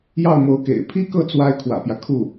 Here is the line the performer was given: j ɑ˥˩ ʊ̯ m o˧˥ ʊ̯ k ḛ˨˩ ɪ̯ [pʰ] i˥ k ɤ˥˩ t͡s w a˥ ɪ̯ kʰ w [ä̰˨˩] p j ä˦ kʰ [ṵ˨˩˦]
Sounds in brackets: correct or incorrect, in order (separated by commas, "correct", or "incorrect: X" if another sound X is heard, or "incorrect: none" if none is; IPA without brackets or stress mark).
correct, correct, incorrect: u˥˩